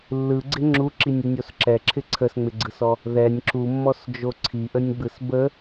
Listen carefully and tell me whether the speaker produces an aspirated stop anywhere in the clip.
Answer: yes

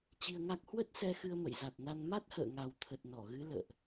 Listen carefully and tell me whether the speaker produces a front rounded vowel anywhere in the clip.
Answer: no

